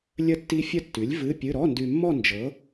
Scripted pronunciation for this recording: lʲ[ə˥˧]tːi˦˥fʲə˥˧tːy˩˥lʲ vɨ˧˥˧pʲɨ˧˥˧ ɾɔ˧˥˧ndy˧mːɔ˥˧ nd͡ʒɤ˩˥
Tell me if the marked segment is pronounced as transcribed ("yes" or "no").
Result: yes